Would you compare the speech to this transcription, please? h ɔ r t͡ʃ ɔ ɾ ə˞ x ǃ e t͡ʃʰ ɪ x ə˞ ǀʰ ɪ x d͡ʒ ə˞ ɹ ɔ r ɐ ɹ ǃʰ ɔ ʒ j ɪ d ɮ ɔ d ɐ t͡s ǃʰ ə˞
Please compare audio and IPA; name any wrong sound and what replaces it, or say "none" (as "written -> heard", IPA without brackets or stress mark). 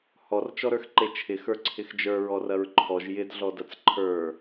none